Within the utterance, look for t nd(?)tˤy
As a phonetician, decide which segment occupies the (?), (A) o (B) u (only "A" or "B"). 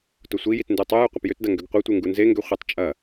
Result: B